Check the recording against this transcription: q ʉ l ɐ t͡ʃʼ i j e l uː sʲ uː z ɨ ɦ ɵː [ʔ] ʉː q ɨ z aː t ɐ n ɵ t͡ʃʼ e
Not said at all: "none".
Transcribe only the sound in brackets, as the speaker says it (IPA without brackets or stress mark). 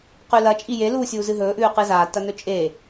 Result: ʔ